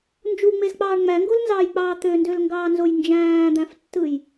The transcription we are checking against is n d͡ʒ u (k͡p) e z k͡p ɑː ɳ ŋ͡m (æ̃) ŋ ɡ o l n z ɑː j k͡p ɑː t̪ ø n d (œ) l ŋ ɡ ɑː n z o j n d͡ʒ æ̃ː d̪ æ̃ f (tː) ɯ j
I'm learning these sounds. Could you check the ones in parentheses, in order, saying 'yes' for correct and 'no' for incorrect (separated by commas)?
no, no, no, yes